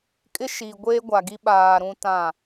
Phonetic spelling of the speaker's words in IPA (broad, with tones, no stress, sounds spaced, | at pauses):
kʼ ɪ˦ ʃ iː˨ ɡʷ eː˦ ɡʷ a˨ ɡ i˦ ɓ aː˨ ɾ ũ˦ t ã˦˨